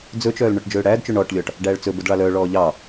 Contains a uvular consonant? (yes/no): no